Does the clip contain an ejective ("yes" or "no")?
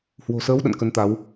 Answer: no